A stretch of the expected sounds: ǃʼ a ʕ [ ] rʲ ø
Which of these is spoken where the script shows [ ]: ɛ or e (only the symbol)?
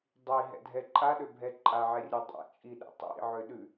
ɛ